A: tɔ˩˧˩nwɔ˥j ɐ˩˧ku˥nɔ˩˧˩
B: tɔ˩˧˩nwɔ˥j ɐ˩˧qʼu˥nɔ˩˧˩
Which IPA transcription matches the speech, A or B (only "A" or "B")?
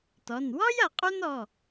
B